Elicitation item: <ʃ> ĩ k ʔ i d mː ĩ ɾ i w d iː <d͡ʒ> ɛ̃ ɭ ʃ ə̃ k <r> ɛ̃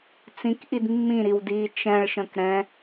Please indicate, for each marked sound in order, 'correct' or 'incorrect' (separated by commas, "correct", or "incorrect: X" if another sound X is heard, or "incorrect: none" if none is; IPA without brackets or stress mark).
incorrect: t͡s, incorrect: t͡ʃ, incorrect: ɾ